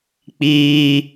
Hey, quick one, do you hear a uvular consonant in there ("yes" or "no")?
no